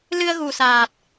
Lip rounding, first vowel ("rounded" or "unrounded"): unrounded